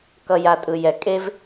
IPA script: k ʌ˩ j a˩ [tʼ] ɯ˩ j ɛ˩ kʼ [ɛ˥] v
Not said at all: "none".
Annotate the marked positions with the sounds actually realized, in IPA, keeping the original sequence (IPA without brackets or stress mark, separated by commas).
tʼ, e˥